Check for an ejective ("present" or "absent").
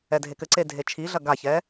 absent